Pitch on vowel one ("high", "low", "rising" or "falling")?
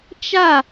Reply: falling